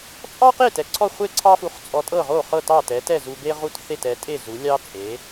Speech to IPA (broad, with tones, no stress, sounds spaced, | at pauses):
t͡sʼ ɑ˥ q e˥˩ t ɛ˩ ǀʰ ɔ˥˩ χʷ e˥˩ ǀʰ ɑ˥ f u˧ χ t͡sʼ ɔ˧ tʼ ɤ˥˩ ʁ o˥˩ χ ɤ˥˩ t ɑ˥˩ t ɛ˩˥ t ɛ˥˩ z u˧ b e˥ ʁ u˥˩ t θ e˥˩ t ɛ˩˥ tʼ e˥˩ z u˩˥ lʲ ɑ˥ t͡sʼ e˩˥